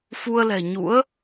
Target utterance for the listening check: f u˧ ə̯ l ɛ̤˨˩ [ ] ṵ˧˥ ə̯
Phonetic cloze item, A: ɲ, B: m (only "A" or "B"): A